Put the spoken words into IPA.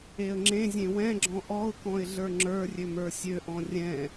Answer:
e ə̯ ŋ͡ǁ ẽ zʲ ẽ w ɛ̃ ɡ͡ǁ ɔ̃ ʔ ɔ ʊ̯ k ɔ̃ ɪ̯ ɮ ə˞ ŋ͡ǁ ə˞ rʲ ø m ə˞ sʲ ø ʔ ɔ̃ rʲ ɛ̃

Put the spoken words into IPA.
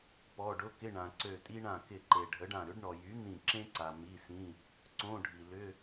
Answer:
p ɔ˩˧˩ ɖ ʊ˧˥˧ k ɪ˧˥˧ ɳ ã˩ ǀ ø˧˩ tʼ i˥ ɳ ã˧˩ k ɪ˧˩ ǃ e˩ ɖʱ ə˩˥ ɖ ã˧˩ ɾ ʏ˩˥ ɖ ɳ ɔ˩ j y˩˥ n̪ ĩ˧˩ ǁ ẽ˥ ǀ a˩ m i˩˧˩ s ĩ˩˧˩ | ǀ õ˧˥˧ ɖʱ i˩ l ʏ˧˥˧

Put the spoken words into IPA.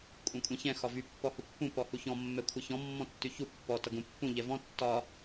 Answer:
kʷʼ ɛ̃ kʷʼ ɛ̃ ç ɛ̃ x ɒ v y pː ɔ h u pː ũ p ɔ h u ç ɔ̃ mː ɛ kʷʰ ʌ ç ɔ̃ mː ɔ̃ tː y ç u pː ɔ t ʌ ɡ ũ pː ũ ʎ ɛ v ɔ̃ tː ɒ

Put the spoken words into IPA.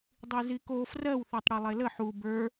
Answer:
dˤ i z i k o f r ɜ w θ ə˞ tˤ ɽ i lˠ e l ə ħ u b ə˞

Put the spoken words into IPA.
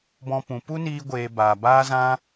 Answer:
b ɔ̃˧ p ũ˨ p u˦ n iː˧ ɡʷ eː˨ b aː˨ b aː˦ z ã˦

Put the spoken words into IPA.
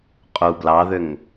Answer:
qʼ u b l ɑ ð ʏ ŋ

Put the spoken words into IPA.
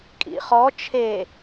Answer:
kʼ ḭ χ ɔ t͡ʃʰ e

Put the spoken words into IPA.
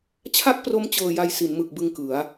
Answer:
t͡ɕʰ a˥˩ k̚ p r o˦˥ m t͡ɕ ɤː˨˩ j a˨˩ j s i˩˦ n m ɯ˨˩ k̚ b ɯ˧ ŋ k ɯ˩˦ a̯

